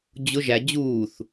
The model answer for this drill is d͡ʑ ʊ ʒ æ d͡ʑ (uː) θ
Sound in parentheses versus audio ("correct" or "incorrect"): correct